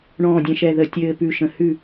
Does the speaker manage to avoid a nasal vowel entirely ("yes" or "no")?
no